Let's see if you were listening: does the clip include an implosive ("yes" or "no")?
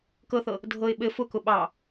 yes